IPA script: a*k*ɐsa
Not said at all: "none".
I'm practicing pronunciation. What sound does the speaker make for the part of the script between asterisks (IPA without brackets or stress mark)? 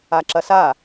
ǁ